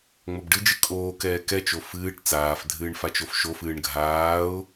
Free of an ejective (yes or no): no